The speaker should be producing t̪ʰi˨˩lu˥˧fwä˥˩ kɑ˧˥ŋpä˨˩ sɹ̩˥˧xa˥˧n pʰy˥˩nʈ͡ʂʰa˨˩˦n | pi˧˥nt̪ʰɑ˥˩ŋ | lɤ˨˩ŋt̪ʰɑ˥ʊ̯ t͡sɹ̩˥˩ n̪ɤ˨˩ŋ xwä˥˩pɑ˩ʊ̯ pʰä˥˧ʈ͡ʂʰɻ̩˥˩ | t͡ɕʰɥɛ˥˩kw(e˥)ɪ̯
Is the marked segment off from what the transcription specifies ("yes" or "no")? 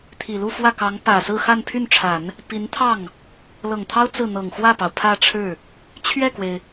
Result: yes